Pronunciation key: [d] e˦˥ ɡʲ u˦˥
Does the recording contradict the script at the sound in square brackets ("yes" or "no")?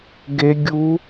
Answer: yes